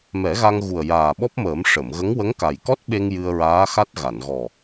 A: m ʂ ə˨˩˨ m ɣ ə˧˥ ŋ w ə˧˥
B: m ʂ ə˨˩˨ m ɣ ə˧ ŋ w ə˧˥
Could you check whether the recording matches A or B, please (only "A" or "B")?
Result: A